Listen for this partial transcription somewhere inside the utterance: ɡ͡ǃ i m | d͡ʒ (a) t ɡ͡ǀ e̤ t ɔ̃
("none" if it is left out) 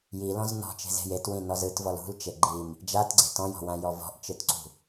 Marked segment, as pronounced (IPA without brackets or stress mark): a